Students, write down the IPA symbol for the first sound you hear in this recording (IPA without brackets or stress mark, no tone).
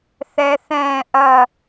θ